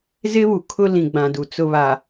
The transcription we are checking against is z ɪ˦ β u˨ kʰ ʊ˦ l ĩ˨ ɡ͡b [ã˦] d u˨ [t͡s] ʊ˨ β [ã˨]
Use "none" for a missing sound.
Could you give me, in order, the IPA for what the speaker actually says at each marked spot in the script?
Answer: ã˨, t͡s, a˨

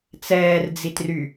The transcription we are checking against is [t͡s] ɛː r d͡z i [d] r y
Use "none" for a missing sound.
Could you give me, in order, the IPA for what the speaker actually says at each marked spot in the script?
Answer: t͡s, t

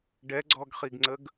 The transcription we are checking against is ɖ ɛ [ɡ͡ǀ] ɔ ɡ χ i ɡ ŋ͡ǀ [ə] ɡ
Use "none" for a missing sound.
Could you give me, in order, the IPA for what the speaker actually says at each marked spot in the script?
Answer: ɡ͡ǀ, ə

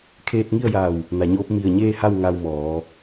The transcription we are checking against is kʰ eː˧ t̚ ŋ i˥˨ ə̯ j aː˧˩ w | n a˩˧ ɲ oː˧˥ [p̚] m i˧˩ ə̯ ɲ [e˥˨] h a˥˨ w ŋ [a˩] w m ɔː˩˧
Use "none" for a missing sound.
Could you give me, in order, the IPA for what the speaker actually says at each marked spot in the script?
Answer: p̚, eː˥˨, a˧

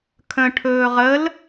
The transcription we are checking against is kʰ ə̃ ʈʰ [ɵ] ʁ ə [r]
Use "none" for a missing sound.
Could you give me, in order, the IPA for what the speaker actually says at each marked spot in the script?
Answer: ɵː, l

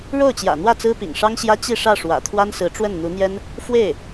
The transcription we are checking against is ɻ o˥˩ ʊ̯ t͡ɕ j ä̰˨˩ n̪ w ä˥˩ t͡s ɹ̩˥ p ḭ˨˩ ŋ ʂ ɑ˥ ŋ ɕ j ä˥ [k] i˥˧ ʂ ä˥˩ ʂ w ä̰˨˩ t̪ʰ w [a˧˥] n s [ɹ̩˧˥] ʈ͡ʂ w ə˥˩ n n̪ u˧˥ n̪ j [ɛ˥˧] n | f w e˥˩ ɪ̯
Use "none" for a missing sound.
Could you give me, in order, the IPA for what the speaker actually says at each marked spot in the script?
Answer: t͡ɕ, a˥, ɹ̩˧˥, ɛ˥

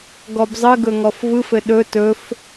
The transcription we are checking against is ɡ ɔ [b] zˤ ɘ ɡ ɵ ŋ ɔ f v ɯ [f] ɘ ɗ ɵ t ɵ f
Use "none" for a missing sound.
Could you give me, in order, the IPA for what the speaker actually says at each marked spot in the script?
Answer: b, f

